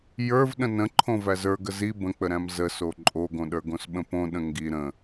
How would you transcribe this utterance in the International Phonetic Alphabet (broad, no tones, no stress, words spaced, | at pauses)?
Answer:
jə˞v ɗə̃nə̃ǃʰõ væzə˞ɡə zi bə̃k͡pəɾæ̃m zəso ǃʼoɡõɗə˞ɡõs ɓə̃põɗə̃ ŋɡi ɾə̃